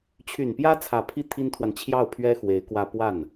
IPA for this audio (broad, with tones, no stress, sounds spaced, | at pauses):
t͡ɕʰ y˨˩ n p j ä˥ t͡sʰ ä˨˩ pʰ i˥˩ t̪ʰ i˥ n t̪ʰ w a˨ n t͡ɕʰ j ɑ˥˩ ʊ̯ pʰ ɥ ɛ˥ x w e˧˥ ɪ̯ k w ä˥ p w a˥˩ n